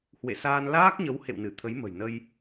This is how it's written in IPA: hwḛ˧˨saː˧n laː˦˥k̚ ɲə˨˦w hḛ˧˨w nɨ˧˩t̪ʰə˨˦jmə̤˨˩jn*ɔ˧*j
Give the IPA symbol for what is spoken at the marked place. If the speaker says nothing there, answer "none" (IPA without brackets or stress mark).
ə˧